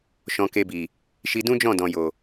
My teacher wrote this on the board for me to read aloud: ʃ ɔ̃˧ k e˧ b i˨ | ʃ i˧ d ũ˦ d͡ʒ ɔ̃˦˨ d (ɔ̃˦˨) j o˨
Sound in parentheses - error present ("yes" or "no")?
yes